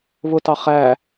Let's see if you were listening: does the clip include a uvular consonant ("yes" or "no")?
yes